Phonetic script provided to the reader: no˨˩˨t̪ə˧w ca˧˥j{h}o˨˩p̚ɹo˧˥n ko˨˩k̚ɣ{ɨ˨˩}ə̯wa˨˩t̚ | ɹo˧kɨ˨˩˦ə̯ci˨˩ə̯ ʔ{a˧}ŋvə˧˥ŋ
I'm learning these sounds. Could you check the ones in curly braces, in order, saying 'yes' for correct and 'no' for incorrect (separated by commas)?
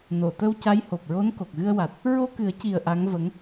yes, no, no